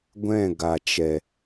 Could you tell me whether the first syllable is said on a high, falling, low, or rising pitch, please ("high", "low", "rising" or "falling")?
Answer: falling